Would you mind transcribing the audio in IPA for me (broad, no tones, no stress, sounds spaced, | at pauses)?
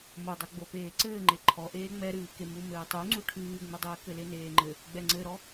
m o dˤ o ɡ͡b o p eː ǀ ɘː ŋ͡ǃ e ǃʰ ɔ ʔ eː ŋ͡m ɛ ɾ ɨː k e m u m ɘː tˤ u ŋ͡ǀ u ʈʰ ɨː ŋ͡m ɘ dˤ ɘː k ɘ l e n eː ŋ͡ǃ ɘ | ɡ͡b ɛ ŋ͡ǀ ɘ ɾ ɔ